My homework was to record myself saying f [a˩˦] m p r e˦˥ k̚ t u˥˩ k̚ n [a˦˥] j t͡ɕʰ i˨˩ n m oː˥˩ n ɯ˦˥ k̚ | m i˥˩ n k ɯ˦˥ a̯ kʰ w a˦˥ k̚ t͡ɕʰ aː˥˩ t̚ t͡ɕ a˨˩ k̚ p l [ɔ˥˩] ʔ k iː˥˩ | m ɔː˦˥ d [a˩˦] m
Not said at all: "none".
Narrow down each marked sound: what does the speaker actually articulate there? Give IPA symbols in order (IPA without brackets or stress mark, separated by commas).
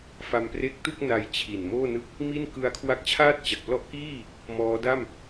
a˧, a˦˥, ɔ˥˩, a˥˩